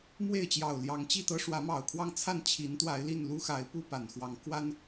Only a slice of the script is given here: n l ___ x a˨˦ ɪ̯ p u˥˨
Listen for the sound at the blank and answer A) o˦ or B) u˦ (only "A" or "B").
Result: B